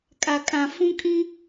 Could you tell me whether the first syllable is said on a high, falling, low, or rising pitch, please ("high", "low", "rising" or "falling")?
low